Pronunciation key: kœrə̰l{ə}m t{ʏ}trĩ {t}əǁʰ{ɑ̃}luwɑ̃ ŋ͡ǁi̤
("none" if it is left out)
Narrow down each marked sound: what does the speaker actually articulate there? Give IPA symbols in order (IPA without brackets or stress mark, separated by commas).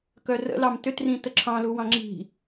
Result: ɑ, ʏ, t, ɑ̃